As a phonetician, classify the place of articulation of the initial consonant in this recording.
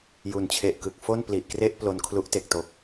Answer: palatal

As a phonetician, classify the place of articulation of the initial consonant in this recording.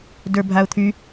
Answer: alveolar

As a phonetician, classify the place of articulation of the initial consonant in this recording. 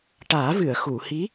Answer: retroflex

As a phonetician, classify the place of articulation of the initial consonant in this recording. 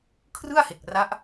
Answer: velar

